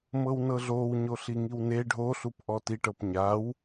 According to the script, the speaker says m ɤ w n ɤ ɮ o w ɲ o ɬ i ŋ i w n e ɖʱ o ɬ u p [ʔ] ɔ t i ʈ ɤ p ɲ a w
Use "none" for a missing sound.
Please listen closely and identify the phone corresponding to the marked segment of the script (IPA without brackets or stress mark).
ʔ